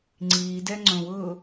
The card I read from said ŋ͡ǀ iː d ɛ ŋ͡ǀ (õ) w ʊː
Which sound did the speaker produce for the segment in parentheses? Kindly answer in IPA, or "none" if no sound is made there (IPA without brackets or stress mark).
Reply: õ